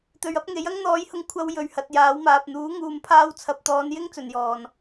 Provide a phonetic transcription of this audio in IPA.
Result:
t̪ ɵ˨ ɥ ɐ˥ p̚ ŋ e˨˥ j ɐ˥ ŋ n̪ ɔː˨˥ j h ʊ˨˧ ŋ kʷʰ ɐ˧ w j ɵ˨ ɥ h ɐ˨ t̚ j aː˨˥ w m aː˨ p̚ n̪ uː˨˥ ŋ uː˨ m pʰ aː˧ w t͡sʰ ɐ˨ p̚ t̪ ɔː˨˧ n j ɪ˥ ŋ t͡s ɵ˨ n j ɔː˨ n

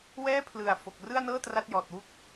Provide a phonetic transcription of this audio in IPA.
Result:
w ɛː˥˩ pʰ l ɯ˨˩ a̯ f o˨˩ k̚ r ɯ˥˩ a̯ n ɤː˥˩ t r a˥˩ t̚ j ɔː˨˩ t̚ w u˥˩ k̚

